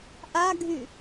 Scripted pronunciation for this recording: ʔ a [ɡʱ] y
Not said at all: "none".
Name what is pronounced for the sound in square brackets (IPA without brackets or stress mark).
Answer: ɡʱ